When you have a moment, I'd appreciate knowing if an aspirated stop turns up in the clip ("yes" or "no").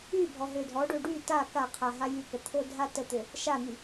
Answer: yes